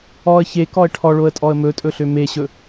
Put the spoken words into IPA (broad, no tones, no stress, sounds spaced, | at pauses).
ɔ ə̯ ç e k ɔ ə̯ ʈʰ ɔ ɭ o ə̯ tʼ ɔ ə̯ m ɵ tʼ ɵ ɬ ø m e ɕ ɵ